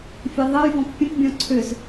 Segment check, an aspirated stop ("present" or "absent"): present